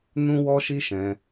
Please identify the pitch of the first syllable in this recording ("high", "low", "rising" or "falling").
high